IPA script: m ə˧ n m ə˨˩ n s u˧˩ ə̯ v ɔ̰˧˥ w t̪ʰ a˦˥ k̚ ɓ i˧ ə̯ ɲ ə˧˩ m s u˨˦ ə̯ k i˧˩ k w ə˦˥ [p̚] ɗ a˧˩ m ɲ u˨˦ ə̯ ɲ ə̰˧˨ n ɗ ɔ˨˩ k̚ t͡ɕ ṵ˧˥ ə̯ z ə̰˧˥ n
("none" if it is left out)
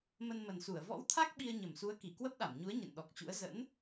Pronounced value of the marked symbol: p̚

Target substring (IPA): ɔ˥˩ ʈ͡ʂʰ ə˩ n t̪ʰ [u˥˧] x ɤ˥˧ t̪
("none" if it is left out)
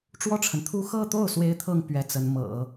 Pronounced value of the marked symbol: u˥˧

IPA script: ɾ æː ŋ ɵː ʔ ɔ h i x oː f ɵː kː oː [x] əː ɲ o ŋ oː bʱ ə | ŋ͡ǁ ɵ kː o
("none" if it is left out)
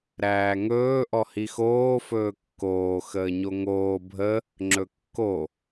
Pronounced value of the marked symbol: x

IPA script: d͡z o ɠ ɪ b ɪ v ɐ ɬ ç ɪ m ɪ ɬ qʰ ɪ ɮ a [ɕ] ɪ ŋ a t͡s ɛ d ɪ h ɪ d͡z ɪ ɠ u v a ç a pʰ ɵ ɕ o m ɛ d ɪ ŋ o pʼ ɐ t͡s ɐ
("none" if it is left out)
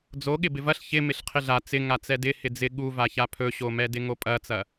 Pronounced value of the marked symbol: t͡s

